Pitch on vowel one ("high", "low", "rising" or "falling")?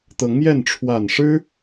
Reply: rising